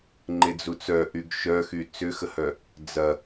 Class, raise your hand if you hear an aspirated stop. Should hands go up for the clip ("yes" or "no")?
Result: no